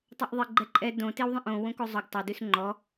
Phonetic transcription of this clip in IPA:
tˤ o ʔ ðˤ e ɡ͡ǃ ɛ ǃʼ ɛ d õ t e w ðˤ ɛ̃ ʔ õ w õ k o zˤ o ɡ tˤ o d ʉ s ŋ͡ǃ ɔ

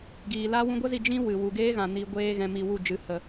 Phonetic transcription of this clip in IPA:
ɡ iː˨ l a˦ w ũ˧ ɡʷ ə˦ z i˧ d͡ʒ ĩ˦ w ɨ˨ w u˨ ɡ eː˦ ɣ ã˨ n i˧ ɡʷ eː˦ ɣ ɛ̃˧ m i˧ w u˦˨ d͡ʒ ɨ˨˦ h ə˧

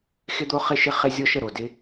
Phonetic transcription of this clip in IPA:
x ɪ˥ d̪ o˥ χ ɪ˥ ʃ ɪ˥ χ ɪ˥ zʲ ɔ˥ ʃ ə˩ ɾ o˩ d ɪ˦

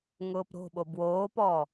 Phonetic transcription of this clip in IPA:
ŋ ʊː p ɾ o̤ ɓ o b w oː p ɔː

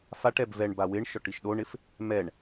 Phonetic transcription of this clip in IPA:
f a ʈ ɛ b v ɛ ɳ b a w ɪ ɳ ʃ ɔ ʈ i ʃ ɗ o ɳ ɪ f | m ɛ ɳ

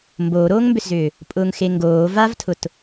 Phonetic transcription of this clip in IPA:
m b oː ɾ oː ŋ m b ʏ s z ʏː | pʼ ʊː ŋ x e ŋ ɡ oː v a v tʰ ʊ t

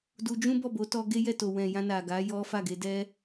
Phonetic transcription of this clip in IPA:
d u˧ d͡ʒ ũ˦ b ɔ˦˨ b o˨˦ t ɔ˧ ɡ e˦ j ɛ˦˨ t o˨ w ɛ̃˨ j ã˧ n a˨ ɡ a˨˦ j ɔ˦ f a˦˨ ɡ e˧ d ɛ˦

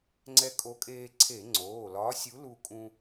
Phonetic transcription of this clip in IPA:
ŋ͡ǀ ɛ˧ kʼ o˨˥ kʼ eː˧ ǀʰ e˧˩˧ ŋ͡ǀ oː˩˧˩ l ɒː˨˥ sʲ u˨˥ l u˧ kʼ ũ˧

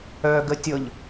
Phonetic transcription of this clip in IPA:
œ ɡ ə tʲ ɤ ʎ

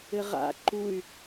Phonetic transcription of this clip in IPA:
ɘ ʁ a̰ ǃ u y̯

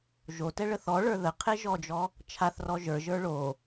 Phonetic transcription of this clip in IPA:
ʒ o t ɛ ɭ ə θ ɔ ɭ ə˞ ð ə qʰ e ʒ ɔ d͡ʒ ɔ | t͡ʃʰ a θ r ɔ ʒ ə˞ ʒ ə˞ ɭ o

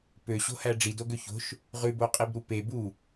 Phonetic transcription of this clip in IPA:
p ø ɕ o̤ h æ ɖ͡ʐ i d o ɡ ø ç o̤ ʃ | ʁ ʉ b o qʼ i b ɾ u p e b u

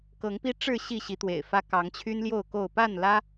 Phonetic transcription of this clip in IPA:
k ɤ˨˦ ŋ p i˦ ʈ͡ʂ ɻ̩˥˨ ɕ i˥˨ ɕ i˨˦ t̪ w ḛ˨˩ ɪ̯ f ä˦ k ɑ˨˦ ŋ t͡ɕʰ y˦ n l j o˥˨ ʊ̯ k o˥˨ ʊ̯ p a˥˨ n l ä˦

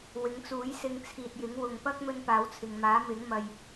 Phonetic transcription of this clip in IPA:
w ɪ˨˧ ŋ t͡s uː˨˥ j s ɪ˧ ŋ t͡sʰ iː˨ t̚ j ɪ˨˥ ŋ w ʊ˨ ŋ p ɐ˥ k̚ m ɵ˧ n p aː˨˥ w t͡sʰ ɪ˨ ŋ m aː˨˥ m ɪ˨˥ ŋ m ɐ˧ j

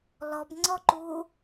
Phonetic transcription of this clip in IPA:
l ɔ b ŋ͡ǀ ɔ ǃ u

